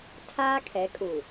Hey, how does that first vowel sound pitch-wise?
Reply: high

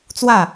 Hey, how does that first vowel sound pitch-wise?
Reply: falling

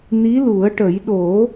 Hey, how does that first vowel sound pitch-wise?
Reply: rising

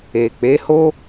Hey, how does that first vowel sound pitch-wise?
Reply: low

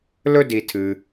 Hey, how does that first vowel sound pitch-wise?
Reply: high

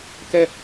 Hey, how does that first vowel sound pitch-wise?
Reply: falling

